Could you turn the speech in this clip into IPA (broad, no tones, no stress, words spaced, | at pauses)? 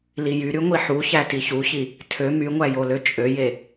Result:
lijyɾy ŋʷiħuçæ tiçuçi | tʰø myŋʷæ joløt͡ʃʼøje